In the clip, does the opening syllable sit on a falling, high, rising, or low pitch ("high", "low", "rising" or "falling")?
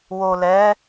low